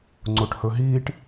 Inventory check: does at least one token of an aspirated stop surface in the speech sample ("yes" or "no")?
no